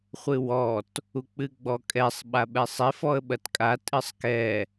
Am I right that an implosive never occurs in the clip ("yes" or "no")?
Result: no